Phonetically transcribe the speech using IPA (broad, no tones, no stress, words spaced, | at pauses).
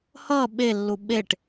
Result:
hʌ ɓelːu ɓeʈ